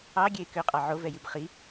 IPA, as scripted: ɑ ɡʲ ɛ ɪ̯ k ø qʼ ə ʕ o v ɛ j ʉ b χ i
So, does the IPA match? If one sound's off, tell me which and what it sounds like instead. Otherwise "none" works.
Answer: ə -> ɑ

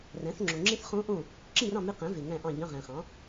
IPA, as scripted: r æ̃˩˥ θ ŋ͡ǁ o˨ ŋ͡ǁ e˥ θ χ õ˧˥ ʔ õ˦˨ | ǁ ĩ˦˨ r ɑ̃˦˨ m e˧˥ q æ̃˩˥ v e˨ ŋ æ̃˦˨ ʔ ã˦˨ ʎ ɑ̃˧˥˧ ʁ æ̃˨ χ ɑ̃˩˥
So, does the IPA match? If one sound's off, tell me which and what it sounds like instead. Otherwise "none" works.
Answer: ã˦˨ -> ɑ̃˦˨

